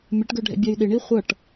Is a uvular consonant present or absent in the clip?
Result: present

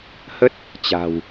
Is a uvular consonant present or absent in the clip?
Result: absent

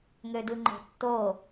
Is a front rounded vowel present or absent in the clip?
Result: present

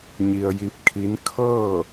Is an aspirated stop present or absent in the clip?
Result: present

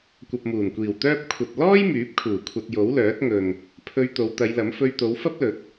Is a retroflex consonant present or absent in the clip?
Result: absent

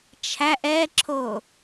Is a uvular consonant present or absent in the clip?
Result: absent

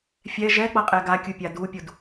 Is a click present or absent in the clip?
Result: absent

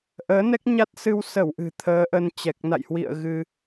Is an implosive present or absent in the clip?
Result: absent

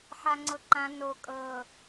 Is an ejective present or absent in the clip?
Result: present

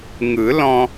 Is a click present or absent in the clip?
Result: absent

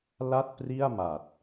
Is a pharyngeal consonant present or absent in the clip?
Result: absent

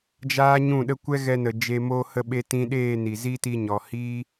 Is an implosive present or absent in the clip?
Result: present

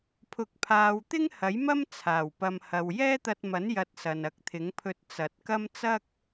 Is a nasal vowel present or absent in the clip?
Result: absent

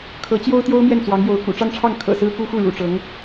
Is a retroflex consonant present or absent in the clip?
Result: present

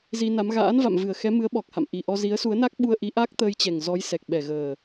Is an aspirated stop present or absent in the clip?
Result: absent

